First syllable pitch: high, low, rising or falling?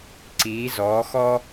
rising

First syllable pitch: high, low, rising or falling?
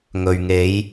low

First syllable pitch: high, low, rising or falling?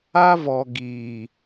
high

